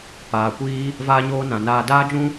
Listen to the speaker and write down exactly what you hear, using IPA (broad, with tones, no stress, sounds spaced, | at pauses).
p aː˨ kʷ iː˦ | v aː˦ ɲ oː˦ n ã˨ n aː˧ d aː˦ d͡ʒ ũ˦